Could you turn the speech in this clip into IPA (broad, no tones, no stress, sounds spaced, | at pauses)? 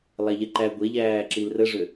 lˠ æ ʎ ɛ ǃ æ ɡʷ e ʎ æː ǁ i l r ə ʐ ø